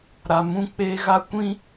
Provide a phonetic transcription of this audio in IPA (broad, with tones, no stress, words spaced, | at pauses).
ɾa˨mũ˦˨k͡peː˦ ɣa˦kʷĩ˦